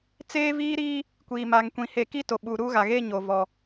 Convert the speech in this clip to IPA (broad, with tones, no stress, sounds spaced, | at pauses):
t͡s eː˦ v iː˦ ɾ iː˦ | kʷ iː˨ m aː˨ ŋ kʷ ĩ˨ h eː˨ k iː˦ t o˨ ɓ uː˨ ɾ uː˦ ɣ a˨ ɣ eː˦ ɲ o˨ v ɔ˨